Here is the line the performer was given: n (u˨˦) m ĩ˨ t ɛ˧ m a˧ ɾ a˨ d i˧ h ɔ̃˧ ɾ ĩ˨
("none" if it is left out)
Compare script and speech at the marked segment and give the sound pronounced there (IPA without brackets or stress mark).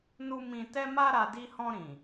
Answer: u˧